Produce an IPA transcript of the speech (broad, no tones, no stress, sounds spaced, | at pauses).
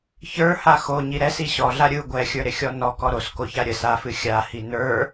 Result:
ç ə˞ h a x o ɲ i ɾ ɛ s i ɕ ɔ ɮ a ɾʲ ɯ ɡʷ ɛ xʲ ə˞ ɾ ɪ xʲ ɔ n ɔ k ɔ ɾ o s k o ç a ɾʲ ə s a f ɨ xʲ a h i n ə˞